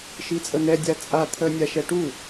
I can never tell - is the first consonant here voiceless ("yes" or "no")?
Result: yes